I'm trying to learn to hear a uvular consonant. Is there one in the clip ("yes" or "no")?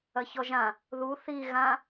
no